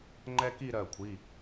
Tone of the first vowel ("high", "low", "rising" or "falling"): high